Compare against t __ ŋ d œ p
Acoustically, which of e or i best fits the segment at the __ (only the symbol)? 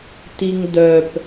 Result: i